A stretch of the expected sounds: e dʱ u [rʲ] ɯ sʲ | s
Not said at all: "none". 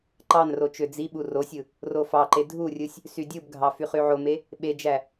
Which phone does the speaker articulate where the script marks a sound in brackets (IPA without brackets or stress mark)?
rʲ